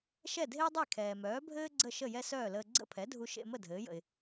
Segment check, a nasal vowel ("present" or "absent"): absent